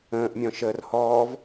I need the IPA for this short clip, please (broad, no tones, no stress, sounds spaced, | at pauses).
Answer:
ə̃ː ʔ mʲ ɔ̃ ʃ əː r h ɔː v